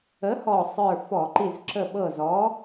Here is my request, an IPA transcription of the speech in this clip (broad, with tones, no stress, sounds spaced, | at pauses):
ə˨˥ h ɔ˧˩ sˤ ə˞˧˩ f ɔ˧˩˧ ǃ i˧˩ z ǁ ə˧˩ ɓ ɤ˧˩ z ɔ˨˥